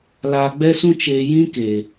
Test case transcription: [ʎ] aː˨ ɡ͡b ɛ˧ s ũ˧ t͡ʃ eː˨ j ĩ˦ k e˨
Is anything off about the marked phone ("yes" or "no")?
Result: yes